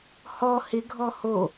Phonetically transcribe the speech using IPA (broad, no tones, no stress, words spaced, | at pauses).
hɔ hɪɡʱɔ ho